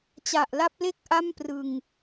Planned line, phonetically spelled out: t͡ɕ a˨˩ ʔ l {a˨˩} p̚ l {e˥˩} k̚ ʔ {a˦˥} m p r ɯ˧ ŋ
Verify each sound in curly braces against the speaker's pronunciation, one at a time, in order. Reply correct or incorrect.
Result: incorrect, correct, incorrect

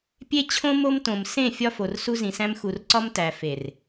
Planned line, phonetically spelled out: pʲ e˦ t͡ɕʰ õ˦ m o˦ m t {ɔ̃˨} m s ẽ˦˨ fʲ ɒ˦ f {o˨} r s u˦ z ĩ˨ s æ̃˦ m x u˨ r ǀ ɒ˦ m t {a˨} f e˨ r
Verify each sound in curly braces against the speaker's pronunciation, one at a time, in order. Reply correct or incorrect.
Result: incorrect, correct, incorrect

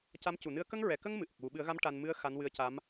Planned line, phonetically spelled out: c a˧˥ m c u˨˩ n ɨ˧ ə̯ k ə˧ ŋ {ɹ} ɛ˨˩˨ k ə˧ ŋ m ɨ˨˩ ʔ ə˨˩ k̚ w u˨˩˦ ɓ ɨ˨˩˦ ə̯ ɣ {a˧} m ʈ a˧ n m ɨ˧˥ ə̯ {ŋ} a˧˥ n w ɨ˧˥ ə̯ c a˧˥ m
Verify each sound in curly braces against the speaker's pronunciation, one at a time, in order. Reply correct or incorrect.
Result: correct, incorrect, incorrect

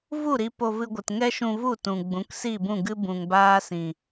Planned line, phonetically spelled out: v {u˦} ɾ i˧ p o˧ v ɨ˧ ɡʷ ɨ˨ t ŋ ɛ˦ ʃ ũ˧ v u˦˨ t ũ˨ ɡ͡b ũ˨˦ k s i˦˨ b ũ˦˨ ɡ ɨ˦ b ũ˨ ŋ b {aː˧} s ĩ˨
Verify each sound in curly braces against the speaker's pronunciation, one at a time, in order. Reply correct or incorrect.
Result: incorrect, incorrect

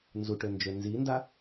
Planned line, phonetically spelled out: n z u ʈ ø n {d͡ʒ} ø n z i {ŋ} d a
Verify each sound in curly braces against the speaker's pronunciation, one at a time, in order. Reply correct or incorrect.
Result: correct, incorrect

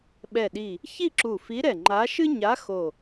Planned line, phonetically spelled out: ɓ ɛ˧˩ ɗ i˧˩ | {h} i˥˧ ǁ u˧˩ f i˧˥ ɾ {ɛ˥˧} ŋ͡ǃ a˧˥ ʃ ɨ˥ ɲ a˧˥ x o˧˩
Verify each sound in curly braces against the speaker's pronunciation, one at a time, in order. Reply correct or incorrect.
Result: incorrect, incorrect

